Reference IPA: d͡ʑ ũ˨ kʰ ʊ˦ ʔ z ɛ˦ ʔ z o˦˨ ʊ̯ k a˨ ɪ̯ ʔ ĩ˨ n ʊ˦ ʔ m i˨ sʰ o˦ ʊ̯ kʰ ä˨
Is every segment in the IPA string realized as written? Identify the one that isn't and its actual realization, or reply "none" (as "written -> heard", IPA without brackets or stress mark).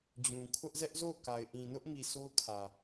none